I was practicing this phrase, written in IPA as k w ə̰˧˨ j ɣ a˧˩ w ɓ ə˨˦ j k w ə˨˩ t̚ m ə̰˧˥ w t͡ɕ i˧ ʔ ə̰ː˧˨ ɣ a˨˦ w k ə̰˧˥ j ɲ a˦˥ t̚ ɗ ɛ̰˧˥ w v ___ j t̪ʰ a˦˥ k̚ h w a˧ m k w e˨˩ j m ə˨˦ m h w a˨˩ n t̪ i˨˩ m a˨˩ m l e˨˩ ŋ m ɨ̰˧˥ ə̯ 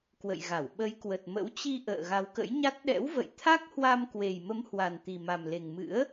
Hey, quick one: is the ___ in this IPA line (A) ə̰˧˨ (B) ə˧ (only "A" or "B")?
A